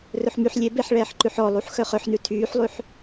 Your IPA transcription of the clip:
r ɵ ħ m y ħ lʲ e b e ħ ɭ ɛː ħ ǃ ʉ ħ ɔ lˠ u ħ x œ χ œ ħ n ʉ tʰ yː ħ lˠ ʉ ħ

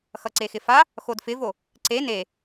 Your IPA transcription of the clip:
x ʌ ǀ e x ɪ f a | x o d f ɪ v o | ǀ e n e

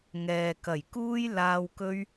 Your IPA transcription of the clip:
ŋ ɛː˨ k ɐ˨˩ j k uː˥ j l aː˧ w k ɵ˥ ɥ

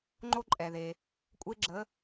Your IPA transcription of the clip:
ŋ͡ǃ o˥ ǃʼ ɛ˩ ð e˩ | kʷʼ e˧ ɡ͡ǁ ə˩˧

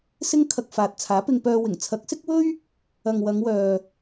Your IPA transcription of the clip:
s ɪ˥ ŋ kʰ ɐ˧ k̚ f aː˨ t̚ t͡sʰ aː˨˥ p ɪ˧ ŋ p œː˧ w ɪ˨˩ ŋ t͡sʰ ɐ˨˥ k̚ s ɪ˥ k̚ w ɵ˥ ɥ | ɐ˨ ŋ w ɐ˨˧ ŋ w œː˨

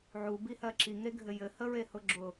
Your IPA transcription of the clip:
ʕ u b i h ɜ ǁ i ŋ e ɡʱ ɘ j ɘ h ə ɹ e h ʊ ɡ͡ǁ ʊ

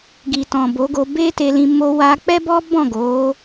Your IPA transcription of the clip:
ɡ i˨ t ɔ̃˨ b o˨˦ ɡ o˧ b e˦ t e˧ l ĩ˧ m o˦ w a˦ k͡p ɛ˦ b ɔ˦ b ɔ̃˦˨ ɡ o˨˦

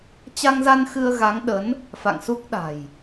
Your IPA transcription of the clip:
t͡ɕ a˧ ŋ z a˧ n x ɨ˧ ə̯ ɣ a˨˦ ŋ ɗ ə˨˦ n | f a̰˧˨ ŋ s u˦˥ k̚ ɗ a̤˨˩ j

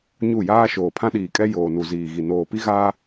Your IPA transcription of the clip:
ɲ u˦˨ j aː˦ ʃ oː˨ pʰ ã˦ ɗ iː˨ kʼ ɛ˦ j oː˨ n u˨ z iː˨ ɣ i˨ n oː˨ p i˦ ɣ aː˦

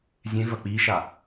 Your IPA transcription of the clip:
zʲ ẽ v ɐ k͡p i ʃ a

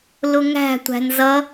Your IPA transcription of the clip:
l ʊ ŋ æ̤ tʷ æ̤ n z ʌ

